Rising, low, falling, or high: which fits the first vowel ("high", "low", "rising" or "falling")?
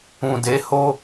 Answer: low